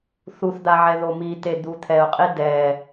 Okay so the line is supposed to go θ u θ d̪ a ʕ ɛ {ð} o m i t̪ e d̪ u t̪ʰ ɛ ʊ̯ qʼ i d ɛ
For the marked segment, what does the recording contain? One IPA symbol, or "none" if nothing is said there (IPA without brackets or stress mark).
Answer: ð